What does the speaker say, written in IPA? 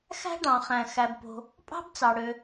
x æ̤˥ ɖ ɑ̃˩ χ æ̃˩ x æ˩ b p o̤˩ | pʼ ɑ̤˥ b t͡s ɑ˩ ɽ ø˩

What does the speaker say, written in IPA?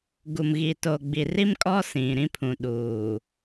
ɡ u˨ m ɣ i˨ t o˨ ɡ͡b i˨ r i˦ m kʼ ɔ˦ s ĩ˨ ɾ ĩ˦ pʰ ũ˨ ɗ uː˨

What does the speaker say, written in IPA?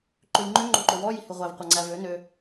ǃ ø j ŋ͡ǃ ø ŋ͡ǃ o ǃ o w ɔ j i h ʉ ʁʷ æ v qʷ ɑ ŋ͡ǀ æ v ø n ø

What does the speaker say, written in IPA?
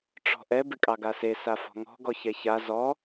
ʈ͡ʂ ɔ̤ ʔ ɛ b ɪ kʼ ɑ ɡ a s e s a f ɔ̤ ŋ ɔ̤ ɡ ɔ ç ɛ ç a z ɔ

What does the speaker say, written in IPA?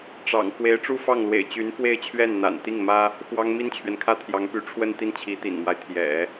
ʈ͡ʂ ɑ̰˨˩ ŋ k w e˧˥ ɪ̯ ʈ͡ʂ u˥˧ f ɑ˥˩ ŋ l w ḛ˨˩ ɪ̯ t͡ɕ y˧˥ n f w e˥˧ ɪ̯ t͡ɕʰ ɥ ɛ˥˩ n n̪ a̰˨˩ n t̪ i˥˩ ŋ m ä˥ | x w ɑ˥ ŋ m i˥ n t͡ɕʰ ɥ ɛ˨ n kʰ ä˥ t̪ʰ j ɑ˧˥ ŋ p y˧˥ ʈ͡ʂʰ w ə˥˧ n t̪ i˥˩ n t͡ɕʰ i˧˥ t̪ ḭ˨˩ n m w a˦ ɪ̯ t̪ʰ j ɛ̰˨˩˦

